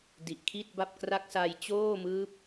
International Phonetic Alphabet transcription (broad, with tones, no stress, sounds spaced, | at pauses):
d i˨˩ ʔ kʰ i˥˩ t̚ b a˥˩ p̚ k r a˥˩ k̚ s a˧ j t͡ɕ oː˥˩ m ɯː˦˥ p̚